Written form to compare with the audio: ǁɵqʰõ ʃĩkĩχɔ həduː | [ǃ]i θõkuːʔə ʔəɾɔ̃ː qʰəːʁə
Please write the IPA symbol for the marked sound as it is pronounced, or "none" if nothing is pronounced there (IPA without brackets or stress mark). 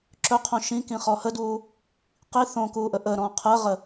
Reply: q